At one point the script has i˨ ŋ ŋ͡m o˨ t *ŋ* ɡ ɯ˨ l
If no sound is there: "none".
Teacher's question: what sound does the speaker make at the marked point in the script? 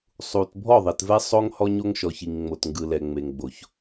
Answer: ŋ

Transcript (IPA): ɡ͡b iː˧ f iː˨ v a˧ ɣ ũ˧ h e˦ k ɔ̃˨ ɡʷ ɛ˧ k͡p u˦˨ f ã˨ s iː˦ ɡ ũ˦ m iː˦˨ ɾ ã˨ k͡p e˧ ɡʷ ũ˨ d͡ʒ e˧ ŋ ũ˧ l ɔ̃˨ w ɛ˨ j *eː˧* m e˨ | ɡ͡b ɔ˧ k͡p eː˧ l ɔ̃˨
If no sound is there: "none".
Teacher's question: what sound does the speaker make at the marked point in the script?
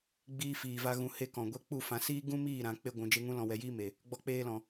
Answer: iː˧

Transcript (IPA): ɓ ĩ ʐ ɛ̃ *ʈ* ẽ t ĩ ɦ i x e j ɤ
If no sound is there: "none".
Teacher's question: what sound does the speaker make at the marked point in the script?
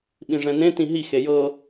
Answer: n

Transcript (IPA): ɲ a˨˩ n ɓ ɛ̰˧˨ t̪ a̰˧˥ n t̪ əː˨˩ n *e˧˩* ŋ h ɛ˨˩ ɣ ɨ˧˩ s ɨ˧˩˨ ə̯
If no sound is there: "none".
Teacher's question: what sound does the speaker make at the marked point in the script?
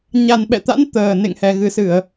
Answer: ḛ˧˨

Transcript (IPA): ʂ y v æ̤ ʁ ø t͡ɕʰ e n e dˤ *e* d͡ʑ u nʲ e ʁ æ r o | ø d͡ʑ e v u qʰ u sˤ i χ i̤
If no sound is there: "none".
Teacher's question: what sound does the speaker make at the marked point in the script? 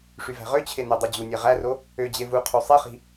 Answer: y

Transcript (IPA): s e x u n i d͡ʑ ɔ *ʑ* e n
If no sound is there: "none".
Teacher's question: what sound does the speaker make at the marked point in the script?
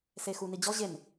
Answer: ʑ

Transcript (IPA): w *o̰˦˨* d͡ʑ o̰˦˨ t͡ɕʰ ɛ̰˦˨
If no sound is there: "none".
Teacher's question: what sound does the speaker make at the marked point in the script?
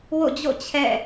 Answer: o̰˦˨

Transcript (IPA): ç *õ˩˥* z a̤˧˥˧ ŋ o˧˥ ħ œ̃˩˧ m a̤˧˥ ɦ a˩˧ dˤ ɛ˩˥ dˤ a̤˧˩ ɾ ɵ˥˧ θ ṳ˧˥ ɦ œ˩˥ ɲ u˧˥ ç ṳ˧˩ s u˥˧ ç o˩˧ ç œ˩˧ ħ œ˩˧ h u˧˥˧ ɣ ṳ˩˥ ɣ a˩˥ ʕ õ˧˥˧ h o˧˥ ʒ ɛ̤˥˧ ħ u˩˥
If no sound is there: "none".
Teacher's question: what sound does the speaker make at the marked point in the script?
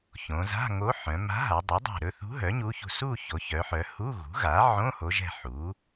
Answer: õ˩˧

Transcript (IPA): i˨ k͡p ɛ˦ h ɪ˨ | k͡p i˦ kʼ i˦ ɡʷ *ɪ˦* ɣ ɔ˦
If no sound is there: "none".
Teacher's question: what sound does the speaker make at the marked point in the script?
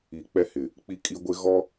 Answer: ɪ˦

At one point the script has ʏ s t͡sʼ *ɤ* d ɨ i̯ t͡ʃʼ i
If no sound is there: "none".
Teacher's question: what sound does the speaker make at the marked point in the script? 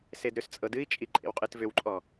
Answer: ɤ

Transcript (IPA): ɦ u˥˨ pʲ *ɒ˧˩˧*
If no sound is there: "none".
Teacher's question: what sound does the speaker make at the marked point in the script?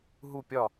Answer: ɒ˥˨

